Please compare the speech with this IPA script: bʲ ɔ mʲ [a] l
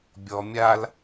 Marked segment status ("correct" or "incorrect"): correct